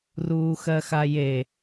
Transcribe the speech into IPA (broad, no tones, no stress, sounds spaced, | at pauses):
r uː x ɜ x a j e